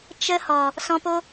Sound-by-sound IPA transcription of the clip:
t͡ʃ ə˧ h ɔ˨ | s ɔ̃˧ p o˦

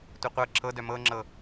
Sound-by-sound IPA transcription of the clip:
tʷ ɨ qʷ ɤ ǁʰ ɤ d œ m ɤ ŋ͡ǁ ɤ

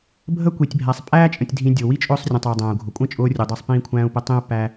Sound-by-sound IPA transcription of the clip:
bʱ ə˦ kʷ i˨ tʲ bʱ æ˨ sˤ pʼ æː˦ t͡ʃʼ ə̃˨ tʲ dʱ ĩ˨ dʲ ʊ˨ w i˦ t͡ʃʼ ʊː˦ sˤ rʲ ə̃˨ tˤ ɑ˨ dˤ æ̃ː˨ u̯ ɡʱ ʊ˨ kʷʼ ə̃˦ t͡ʃʼ ʊː˦ rʲ u˨ dˤ ɑ˦ sˤ p ĩː˦ kʷʰ æ̃ː˦ u̯ p ə˦ tˤ ĩ˦ u̯ p æ˦

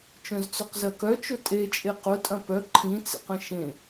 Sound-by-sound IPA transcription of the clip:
t͡ʃ œ̃ z t͡s œ q z ɜ k œ t͡ʃ ʊ tʼ e t͡ʃʼ e q ʊ tʼ ɐ̃ p œ ǃʰ ĩ t͡s ḛ q ə̃ ʃ ẽ

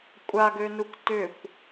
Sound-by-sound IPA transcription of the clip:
kʷʼ a ɡ ø n u kʷ t ʏ kʷ

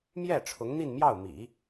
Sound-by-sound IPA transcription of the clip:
m j ɛ˥˩ ʈ͡ʂʰ ʊ˧˥ ŋ n̪ i˥˧ n m j ɑ˥˩ ʊ̯ m ḭ˨˩˦

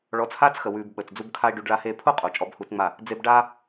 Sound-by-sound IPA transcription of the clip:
ɭ ɔ˨˦ t͡s h aː˦ t͡s x ə˨ w ʉː˨ b ɓ əː˨ t͡s d͡z u˧ b kʰ a˦ e̯ ɖ ʉ˧ ɖ ɭ a˦ h eː˦ pʰ o˦ qʼ o˨ t͡ʃʼ ɔ˨˦ b h uː˧ t͡s ŋ͡m a˦˨ | d͡z e˧ b ɖ aː˦

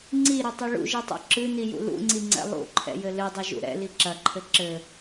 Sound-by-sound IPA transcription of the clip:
ŋ͡ǀ i ɾ ɘ tˤ ɨ ɭ ṵ ʒ i tˤ ṵ ǁ ɨ n i j ṵ l ṵ ŋ͡ǀ i ŋ͡ǀ ɛ̰ lˠ ṵ ǃʰ ɛ̰ j ɘ l ɨ dˤ ɘ ʒ ṵ ɾ ɛ̰ l i ǁ ɐ ǃʰ ɘ ǁ ɘ

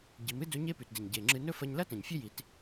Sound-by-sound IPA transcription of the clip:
ɟ i˩˧ m ɨ˥ d ɵ˧˥ ɲ e˧ p ʉ˩ t d e˩ ɲ ɟ e˩ ŋ͡ǁ ɨ˧ n ɵ˥ f ɐ˧ ɲ l ɐ˥ t ɐ̃˩ ɲ fʲ ɵ˥ j i˩˧ t

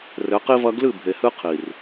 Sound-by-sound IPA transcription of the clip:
r ɘ˨˦ q i˦ v ɐ˦ ɡ l ɨ˦˨ bʱ e˨ h ɨ˦ qʰ i˨ r

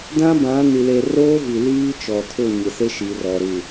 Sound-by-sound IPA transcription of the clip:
d ã˦ b ã˨˦ n i˨ l e˨ r oː˦ v i˨ l iː˦ t͡ʃ ɔ˨ tʰ ʊ˦˨ ɲ ɪ˨ s e˦ ʃ i˨ r ɔ˨ ɾ u˨

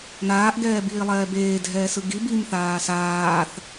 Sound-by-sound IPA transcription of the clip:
n aː ʔ ɡ ɛː b iː lˠ ɛː b eː dʱ ɛː s ɯ ɡ i b i m θ aː s aː θ

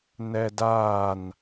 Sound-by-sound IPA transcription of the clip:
n ɛ d aː n

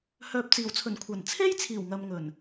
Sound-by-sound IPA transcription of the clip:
h œː˨ p̚ t͡s iː˨˩ w t͡sʰ ɵ˨˩ n kʷʰ ɐ˨˩ n t͡sʰ e˥ j t͡sʰ iː˨˩ w ŋ ɐ˨ m ŋ ɵ˨˩ n

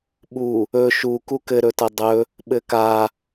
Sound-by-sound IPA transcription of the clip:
ɓ u | ɵ ʃ u k u k ɘ ɾ ɵ t ɐ dˤ ɵ | ɓ ɘ k a

